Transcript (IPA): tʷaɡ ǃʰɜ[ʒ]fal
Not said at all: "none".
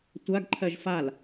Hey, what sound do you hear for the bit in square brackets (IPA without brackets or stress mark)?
ʒ